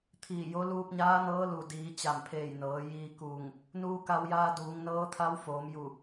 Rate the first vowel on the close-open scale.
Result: close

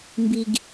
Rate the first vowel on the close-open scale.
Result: close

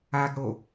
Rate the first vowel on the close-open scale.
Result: open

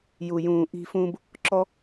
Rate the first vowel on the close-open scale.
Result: close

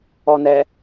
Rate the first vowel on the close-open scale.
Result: mid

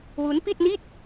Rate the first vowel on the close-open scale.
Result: close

